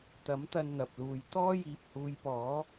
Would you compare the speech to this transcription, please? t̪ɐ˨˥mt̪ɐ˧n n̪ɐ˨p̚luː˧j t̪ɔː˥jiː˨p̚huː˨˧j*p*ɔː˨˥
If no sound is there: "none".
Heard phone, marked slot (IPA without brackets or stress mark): p